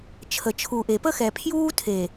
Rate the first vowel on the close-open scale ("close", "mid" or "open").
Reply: mid